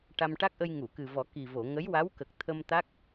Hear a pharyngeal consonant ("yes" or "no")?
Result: no